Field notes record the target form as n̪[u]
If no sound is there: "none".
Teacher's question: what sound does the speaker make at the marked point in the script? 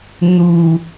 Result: u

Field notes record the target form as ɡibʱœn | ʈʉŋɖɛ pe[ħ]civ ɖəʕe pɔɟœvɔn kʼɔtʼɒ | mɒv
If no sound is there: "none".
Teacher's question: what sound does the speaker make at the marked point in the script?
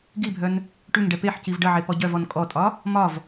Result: ħ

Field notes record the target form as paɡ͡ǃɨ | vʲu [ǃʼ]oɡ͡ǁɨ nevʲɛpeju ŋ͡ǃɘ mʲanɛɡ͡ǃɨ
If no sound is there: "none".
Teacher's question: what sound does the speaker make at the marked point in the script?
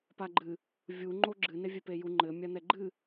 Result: ŋ͡ǃ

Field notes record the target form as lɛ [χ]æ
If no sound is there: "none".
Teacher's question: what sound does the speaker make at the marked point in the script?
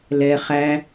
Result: χ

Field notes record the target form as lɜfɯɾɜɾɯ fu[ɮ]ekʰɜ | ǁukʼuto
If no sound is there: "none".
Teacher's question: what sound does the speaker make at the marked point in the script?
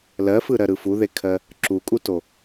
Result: ð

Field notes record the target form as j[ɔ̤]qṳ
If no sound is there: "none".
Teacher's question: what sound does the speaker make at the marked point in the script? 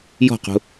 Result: ɔ̤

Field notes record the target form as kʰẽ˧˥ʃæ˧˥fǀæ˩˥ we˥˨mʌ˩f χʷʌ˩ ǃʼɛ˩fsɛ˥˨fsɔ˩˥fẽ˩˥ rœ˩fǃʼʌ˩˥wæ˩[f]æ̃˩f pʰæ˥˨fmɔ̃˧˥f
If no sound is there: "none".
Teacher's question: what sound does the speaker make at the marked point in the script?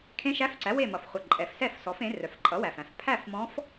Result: f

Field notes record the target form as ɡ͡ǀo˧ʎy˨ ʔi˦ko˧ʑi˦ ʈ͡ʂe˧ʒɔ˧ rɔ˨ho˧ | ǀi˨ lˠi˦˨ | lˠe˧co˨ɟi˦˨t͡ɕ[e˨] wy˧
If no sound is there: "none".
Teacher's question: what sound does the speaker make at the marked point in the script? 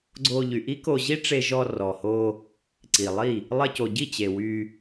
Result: e˨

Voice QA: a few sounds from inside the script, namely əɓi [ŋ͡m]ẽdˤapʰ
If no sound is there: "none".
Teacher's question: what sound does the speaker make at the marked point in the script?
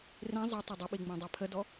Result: ŋ͡m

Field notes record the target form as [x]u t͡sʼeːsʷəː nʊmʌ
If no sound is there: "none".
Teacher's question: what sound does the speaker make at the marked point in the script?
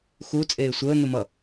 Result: x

